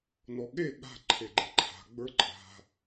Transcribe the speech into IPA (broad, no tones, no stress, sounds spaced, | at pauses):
n ɔ ɠ e ɠ a̤ ǃʰ e ɡ͡ǃ e ǃʰ a̤ ɡ͡b ə˞ ǃʼ a̤